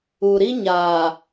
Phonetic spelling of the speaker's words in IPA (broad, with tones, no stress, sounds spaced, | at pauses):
u˨ ɾ i˦ ɲ aː˨